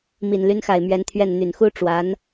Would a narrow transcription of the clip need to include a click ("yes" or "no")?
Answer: no